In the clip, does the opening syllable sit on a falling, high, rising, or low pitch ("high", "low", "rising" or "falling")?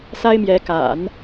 high